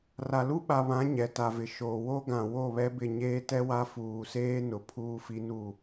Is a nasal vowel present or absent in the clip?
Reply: present